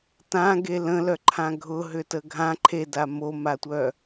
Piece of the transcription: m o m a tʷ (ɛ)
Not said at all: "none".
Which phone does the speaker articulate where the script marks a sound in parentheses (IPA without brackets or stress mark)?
œ